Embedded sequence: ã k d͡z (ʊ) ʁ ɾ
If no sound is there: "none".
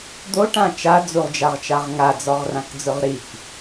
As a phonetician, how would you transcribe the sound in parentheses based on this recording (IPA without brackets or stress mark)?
ʊ